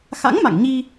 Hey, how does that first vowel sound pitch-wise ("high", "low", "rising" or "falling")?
rising